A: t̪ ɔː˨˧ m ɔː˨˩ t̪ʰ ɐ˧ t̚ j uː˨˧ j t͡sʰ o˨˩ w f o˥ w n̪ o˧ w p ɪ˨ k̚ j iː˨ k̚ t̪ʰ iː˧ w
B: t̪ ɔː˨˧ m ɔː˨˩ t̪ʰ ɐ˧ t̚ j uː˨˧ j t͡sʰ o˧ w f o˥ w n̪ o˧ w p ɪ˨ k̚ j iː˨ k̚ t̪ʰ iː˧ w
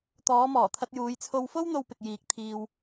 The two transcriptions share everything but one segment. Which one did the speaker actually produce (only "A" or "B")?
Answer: B